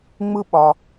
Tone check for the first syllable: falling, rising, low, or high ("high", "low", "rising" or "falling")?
high